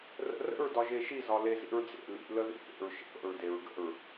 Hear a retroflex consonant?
no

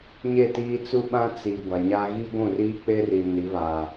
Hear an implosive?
yes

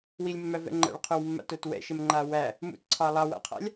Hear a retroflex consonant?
yes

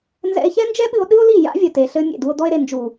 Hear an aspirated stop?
no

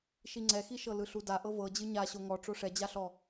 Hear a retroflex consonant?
yes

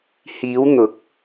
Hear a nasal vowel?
no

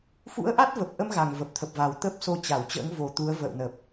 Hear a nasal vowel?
no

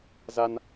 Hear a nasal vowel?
no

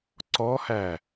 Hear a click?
yes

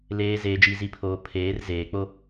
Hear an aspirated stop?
yes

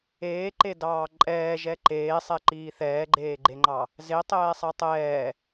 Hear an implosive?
no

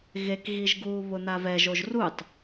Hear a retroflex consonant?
no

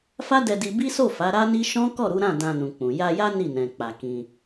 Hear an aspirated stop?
no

